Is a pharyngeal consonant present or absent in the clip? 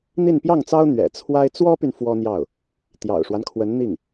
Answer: absent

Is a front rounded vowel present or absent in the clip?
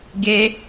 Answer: absent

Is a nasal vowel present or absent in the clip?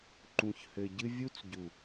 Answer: present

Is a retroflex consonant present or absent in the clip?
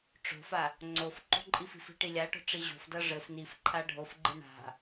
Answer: present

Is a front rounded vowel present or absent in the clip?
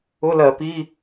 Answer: absent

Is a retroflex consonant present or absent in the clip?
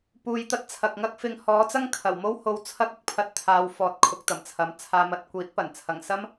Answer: absent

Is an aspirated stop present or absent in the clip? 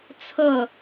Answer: present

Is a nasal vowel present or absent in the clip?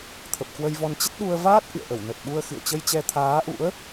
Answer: absent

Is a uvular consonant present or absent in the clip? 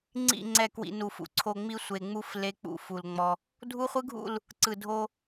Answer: present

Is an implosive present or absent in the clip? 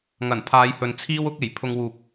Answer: absent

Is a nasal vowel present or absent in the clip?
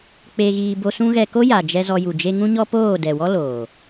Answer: present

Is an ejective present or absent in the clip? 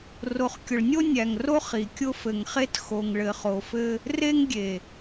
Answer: absent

